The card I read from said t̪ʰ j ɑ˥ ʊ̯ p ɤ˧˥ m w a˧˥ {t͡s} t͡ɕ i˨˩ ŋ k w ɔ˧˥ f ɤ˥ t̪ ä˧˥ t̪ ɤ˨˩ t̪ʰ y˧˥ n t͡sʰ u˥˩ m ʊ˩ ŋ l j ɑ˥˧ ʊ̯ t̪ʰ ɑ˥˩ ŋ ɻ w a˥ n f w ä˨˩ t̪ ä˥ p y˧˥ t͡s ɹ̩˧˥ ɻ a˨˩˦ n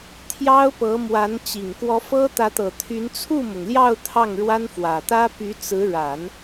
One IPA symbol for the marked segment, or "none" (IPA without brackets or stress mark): n